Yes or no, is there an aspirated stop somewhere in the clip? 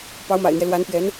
no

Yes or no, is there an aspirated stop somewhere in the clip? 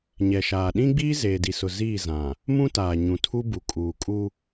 yes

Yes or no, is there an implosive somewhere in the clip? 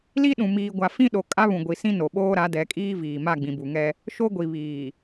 yes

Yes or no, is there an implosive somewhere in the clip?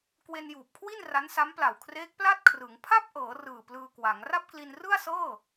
no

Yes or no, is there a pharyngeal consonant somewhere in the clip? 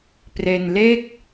no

